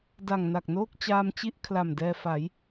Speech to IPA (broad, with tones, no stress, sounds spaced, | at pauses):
d a˨˩ ŋ n a˨˩ k̚ n oː˥˩ k̚ t͡ɕ aː˧ m t͡ɕ i˥˩ ʔ kʰ l a˨˩ m d ɛː˧ f a˩˦ j